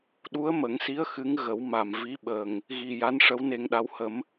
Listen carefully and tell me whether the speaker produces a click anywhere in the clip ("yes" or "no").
no